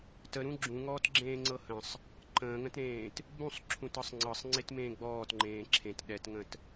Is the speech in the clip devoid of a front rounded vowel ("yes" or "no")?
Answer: yes